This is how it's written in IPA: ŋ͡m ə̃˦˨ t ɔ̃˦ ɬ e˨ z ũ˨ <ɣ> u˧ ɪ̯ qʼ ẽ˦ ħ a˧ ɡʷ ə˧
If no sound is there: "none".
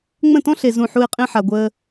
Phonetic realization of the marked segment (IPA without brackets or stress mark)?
ħ